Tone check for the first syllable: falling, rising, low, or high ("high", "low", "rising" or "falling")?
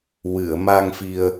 low